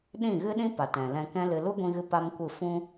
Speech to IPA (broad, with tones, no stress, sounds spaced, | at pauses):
ɗ ĩ˦˨ ɣ ɨ˦ ɗ ĩ˦ p a˨ t ɛ̃˨ l ɛ̃˧ k ɛ̃˦ l ɨ˧ l u˦ ɡʷ ĩ˧ ɣ ɨ˧ p a˦ m kʷ ɨ˦˨ f ũ˦